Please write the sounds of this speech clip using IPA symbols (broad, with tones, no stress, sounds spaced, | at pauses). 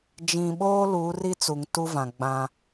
d͡ʒ ĩ˨ ɓ oː˦ l uː˨˦ r i˦ t͡s u˨ ŋ t u˦ v ã˨ ɡ͡b ã˦